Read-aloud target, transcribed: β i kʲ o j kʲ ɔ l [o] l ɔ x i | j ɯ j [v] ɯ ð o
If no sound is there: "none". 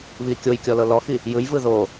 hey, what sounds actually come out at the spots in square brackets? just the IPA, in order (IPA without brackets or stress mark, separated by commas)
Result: ɤ, v